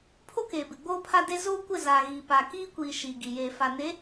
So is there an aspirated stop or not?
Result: yes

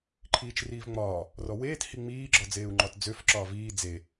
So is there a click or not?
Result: yes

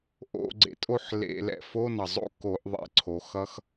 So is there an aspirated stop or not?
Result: yes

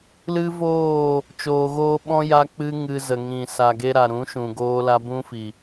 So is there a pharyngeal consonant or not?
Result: no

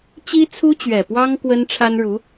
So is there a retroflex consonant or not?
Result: yes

